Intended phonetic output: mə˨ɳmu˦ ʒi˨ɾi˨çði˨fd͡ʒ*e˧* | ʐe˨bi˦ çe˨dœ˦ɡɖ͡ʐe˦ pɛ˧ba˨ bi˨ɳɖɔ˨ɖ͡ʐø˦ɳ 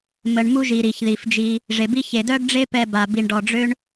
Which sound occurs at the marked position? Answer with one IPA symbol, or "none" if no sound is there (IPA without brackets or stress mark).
i˧